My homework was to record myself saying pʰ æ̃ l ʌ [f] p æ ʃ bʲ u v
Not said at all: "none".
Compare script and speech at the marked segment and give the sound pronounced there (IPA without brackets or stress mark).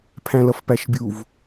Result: f